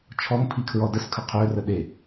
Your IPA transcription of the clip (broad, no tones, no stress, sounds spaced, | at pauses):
t͡ʃʰ ɔ ŋ pʰ i kʰ ɹ ɔ d ə s kʰ ə qʰ ø r ə ɗ e